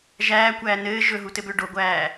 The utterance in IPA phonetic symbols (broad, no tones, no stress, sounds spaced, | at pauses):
ʒ æː kʷ æː n ɘː ʒ ɵ ɦ u t ɘ b ʏː ɖ o ɡʷ æː